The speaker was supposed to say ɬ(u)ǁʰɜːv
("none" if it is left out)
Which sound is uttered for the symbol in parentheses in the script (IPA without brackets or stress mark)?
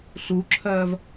u